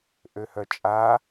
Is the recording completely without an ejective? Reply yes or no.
no